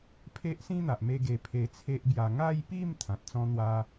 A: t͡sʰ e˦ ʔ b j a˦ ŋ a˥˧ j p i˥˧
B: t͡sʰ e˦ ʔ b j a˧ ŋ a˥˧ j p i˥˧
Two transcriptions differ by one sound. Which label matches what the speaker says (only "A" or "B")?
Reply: B